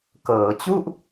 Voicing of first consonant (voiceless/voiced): voiceless